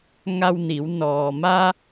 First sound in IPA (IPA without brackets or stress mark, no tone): ŋ